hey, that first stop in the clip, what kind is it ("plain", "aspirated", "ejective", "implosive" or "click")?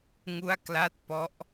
plain